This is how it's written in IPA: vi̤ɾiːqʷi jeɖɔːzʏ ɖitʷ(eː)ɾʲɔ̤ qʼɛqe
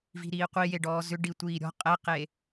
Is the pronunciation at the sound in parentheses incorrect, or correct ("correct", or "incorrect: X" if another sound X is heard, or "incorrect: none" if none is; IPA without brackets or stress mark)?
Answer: incorrect: iː